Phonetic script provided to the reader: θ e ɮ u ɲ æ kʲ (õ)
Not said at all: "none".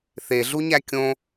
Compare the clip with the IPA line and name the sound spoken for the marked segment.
õ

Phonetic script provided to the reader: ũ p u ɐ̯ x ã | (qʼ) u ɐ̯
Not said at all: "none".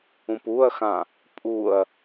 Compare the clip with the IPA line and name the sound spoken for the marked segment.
pʼ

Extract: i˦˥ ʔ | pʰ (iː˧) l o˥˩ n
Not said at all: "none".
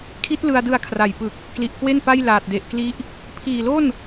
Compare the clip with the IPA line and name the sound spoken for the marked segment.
iː˨˩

